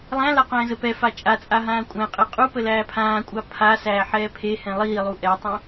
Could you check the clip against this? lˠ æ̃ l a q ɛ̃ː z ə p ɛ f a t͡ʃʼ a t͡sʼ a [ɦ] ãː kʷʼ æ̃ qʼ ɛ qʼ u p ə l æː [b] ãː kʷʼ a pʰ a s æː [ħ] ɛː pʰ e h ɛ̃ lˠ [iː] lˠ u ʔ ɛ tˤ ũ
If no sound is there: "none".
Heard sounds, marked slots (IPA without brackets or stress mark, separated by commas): ɦ, pʰ, ħ, iː